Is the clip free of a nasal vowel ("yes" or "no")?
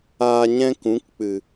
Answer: no